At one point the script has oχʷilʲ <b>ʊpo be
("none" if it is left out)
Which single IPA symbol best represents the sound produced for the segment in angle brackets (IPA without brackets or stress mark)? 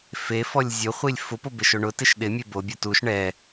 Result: f